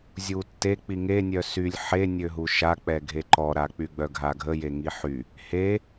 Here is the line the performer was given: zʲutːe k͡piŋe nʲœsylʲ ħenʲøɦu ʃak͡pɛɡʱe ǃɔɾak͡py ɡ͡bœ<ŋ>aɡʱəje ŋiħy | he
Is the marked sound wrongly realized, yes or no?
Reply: yes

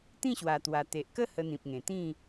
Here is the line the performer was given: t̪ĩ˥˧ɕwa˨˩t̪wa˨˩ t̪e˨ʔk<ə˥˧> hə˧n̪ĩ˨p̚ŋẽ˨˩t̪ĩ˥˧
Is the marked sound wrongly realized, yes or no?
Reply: no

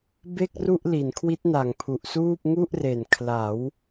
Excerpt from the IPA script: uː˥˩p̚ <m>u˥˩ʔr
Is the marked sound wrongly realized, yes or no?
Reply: yes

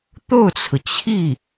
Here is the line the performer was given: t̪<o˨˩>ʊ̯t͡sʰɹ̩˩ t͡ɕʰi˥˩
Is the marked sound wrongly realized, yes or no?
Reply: yes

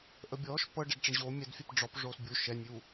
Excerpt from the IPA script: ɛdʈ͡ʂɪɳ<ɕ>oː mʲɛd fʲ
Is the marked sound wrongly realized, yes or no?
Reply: yes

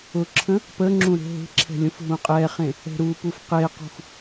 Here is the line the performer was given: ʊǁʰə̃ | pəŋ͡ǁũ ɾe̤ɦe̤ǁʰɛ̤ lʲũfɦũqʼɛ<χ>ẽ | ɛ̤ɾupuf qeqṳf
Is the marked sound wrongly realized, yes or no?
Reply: no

